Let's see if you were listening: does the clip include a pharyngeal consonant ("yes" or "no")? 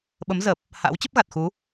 no